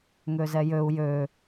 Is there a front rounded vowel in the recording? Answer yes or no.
yes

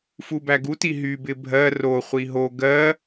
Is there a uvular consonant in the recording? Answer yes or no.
yes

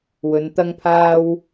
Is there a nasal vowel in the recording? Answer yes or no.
no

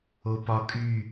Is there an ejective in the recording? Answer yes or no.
yes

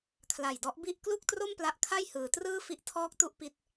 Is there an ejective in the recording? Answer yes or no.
no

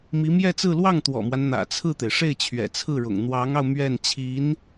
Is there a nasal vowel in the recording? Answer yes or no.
no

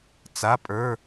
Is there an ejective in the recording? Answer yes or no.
yes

